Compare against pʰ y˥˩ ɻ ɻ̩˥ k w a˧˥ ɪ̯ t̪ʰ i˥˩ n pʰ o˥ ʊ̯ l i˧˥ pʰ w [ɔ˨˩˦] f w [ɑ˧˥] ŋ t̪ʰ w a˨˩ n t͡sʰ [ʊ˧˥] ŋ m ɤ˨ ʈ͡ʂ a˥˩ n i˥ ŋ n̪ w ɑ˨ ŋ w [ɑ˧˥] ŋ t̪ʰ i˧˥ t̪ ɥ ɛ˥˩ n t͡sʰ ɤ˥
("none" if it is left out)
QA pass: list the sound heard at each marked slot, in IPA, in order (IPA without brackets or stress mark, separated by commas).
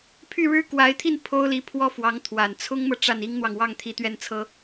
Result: ɔ˥˩, ɑ˧˥, ʊ˥, ɑ˥˩